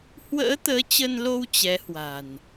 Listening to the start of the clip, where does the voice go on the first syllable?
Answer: rising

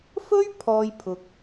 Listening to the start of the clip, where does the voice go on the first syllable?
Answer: high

